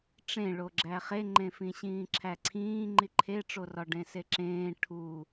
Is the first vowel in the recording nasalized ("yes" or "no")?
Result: yes